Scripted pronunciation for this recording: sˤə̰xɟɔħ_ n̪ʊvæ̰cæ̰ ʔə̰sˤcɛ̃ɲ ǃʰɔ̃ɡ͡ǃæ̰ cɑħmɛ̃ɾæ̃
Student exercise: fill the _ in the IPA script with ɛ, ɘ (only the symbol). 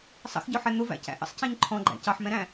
ɛ